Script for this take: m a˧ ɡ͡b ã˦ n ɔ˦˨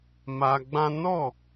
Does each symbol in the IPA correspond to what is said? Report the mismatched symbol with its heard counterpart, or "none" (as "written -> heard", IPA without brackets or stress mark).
none